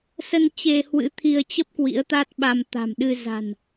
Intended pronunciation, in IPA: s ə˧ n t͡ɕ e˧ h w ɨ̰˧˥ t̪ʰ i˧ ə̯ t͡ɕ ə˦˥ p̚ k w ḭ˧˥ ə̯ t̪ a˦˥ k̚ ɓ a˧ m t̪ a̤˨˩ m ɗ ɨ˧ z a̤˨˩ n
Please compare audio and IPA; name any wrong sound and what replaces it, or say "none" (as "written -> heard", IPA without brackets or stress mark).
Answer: k̚ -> t̚